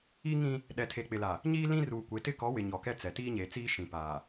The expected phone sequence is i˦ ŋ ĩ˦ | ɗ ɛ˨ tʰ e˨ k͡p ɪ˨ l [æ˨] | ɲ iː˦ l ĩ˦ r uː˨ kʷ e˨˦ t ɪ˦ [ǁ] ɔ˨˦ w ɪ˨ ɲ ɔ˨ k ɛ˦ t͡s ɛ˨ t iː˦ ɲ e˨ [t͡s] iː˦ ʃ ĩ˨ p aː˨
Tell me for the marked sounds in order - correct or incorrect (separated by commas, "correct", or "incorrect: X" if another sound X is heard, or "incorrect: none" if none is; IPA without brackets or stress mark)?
incorrect: a˨, incorrect: k, correct